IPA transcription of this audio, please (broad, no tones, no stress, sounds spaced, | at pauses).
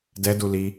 d ɛ d u l i